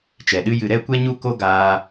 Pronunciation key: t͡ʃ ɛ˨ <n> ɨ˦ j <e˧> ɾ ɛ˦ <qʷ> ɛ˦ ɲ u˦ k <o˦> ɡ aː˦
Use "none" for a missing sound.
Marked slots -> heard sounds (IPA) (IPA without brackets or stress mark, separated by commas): ɗ, ɨ˧, kʷ, o˦